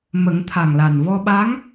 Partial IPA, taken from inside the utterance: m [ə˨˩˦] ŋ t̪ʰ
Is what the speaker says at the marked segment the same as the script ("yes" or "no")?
yes